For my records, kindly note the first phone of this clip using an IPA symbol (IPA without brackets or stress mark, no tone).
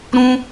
ɾ